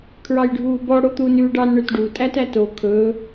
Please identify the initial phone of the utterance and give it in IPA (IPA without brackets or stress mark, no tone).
kʰ